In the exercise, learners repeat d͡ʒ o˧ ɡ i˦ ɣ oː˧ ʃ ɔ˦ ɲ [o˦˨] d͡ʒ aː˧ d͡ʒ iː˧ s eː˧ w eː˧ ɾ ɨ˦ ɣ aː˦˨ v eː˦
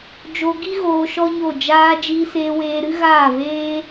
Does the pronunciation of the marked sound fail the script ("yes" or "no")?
no